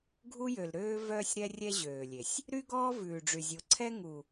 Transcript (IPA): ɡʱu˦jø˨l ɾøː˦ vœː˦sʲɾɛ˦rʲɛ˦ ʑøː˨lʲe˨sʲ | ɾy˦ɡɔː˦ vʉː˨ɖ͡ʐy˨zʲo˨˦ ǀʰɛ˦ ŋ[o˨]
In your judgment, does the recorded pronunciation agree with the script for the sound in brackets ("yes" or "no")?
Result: no